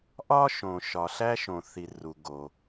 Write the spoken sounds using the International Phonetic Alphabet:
ʔ ɒ˥ ʃ õ˩ ʃ ɒ˩ ɬ æ˥ ʃ õ˩ θ i˩ r u˩ ɡ o˩

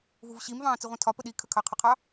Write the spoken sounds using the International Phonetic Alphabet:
v u v ɕ i m v ɑ̃ː t͡s i ʁʷ ĩ tʰ ɒ p ə ɗ i kʰ ə kʰ ɑ qʰ ʊ qʰ ɑ

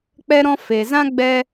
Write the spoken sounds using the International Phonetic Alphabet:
k͡p ɛ˧ ɾ ɔ̃˧ f e˨ z ã˦ ɡ͡b ɛ˦

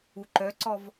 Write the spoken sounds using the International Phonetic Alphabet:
u ǃ œ ǀ ɔ v

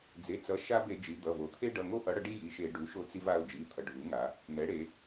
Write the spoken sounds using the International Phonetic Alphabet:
d͡z e˩˧˩ t͡s ʌ˩˥ ʃ a˦ b e˧˩˧ d͡ʒ i˩˧ d̪ ʌ˩˧˩ v o˧˩˧ t̪ʰ e˦ ɖ ʌ˩˧˩ ŋ o˦ ʔ ʌ˩˥ ɽ ʌ˧˩˧ ɖ i˦ j i˩˧˩ ʃ e˧˩˧ ɖ u˩˥ ʃ o˦ t͡s i˦ v a˩˧˩ ʊ̯ d͡ʒ i˩˧˩ t̪ʰ ʌ˩˧ ɖʱ u˩˥ ŋ a˩˧ | n̪ ɛ˩˥ ɽ e˩˧

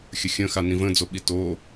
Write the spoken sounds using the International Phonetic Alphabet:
xʲ ə xʲ ə̃ x a n ĩ v ə̃ d͡z o ɓ i t o

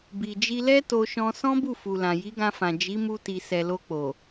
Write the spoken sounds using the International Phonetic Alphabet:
b i˨ d͡ʒ i˧ l ɛ˦ t o˦ ʃ ɔ̃˦ s ɔ̃˦ b u˦˨ f u˨ l ã˨ j i˨˦ ɡ ã˧ f ã˨ d͡ʒ i˨˦ m u˧ t i˨ s ɛ˨ l o˧ k͡p o˨

